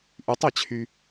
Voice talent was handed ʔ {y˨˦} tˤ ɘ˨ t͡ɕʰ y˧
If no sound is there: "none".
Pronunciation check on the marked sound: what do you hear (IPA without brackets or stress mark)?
y˨˦